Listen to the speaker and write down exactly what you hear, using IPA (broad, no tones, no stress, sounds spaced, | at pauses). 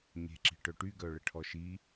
ɲ e̤ ǁ i̤ ʈ œ ʈ y ɡ œ ɭ ə ʈʰ ɔ ʃ i